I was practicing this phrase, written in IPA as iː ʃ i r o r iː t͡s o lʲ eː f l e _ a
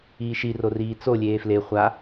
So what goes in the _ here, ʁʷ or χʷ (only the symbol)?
χʷ